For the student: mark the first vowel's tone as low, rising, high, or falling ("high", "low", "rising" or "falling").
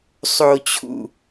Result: low